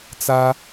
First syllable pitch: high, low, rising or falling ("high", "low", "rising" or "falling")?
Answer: high